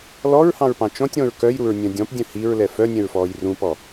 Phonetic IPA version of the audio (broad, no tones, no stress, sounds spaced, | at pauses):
l ɔ ɹ h ɑ̃ ɹ p ɑ̃ t͡ʃ ɔ̃ tʲ ɾ ɔ̃ ɹ k œ j ɾ u ɹ nʲ œ̃ dʲ ɔ̃ p dʲ œ̃ h i ɹ l ɛ f œ nʲ ɛ̃ ɹ f ɔː j r ũ p ɔ